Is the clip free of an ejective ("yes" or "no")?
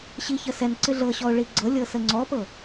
yes